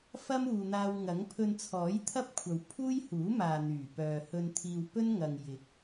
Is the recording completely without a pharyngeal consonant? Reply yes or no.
yes